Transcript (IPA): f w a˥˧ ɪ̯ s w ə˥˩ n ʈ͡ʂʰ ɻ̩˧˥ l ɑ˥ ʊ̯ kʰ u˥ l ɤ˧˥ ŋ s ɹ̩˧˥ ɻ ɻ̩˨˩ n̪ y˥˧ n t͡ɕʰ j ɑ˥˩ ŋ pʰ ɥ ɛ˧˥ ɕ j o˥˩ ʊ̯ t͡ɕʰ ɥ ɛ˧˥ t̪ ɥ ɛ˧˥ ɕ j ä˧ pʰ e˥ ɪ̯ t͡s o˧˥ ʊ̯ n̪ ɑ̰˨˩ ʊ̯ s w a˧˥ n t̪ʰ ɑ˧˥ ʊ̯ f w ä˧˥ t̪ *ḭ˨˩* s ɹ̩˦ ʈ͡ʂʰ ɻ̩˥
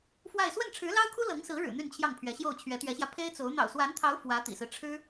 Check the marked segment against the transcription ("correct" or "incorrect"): correct